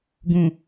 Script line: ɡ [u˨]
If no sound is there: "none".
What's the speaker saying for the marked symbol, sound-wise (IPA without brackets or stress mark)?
ũ˨